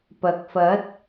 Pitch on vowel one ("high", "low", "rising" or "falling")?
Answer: rising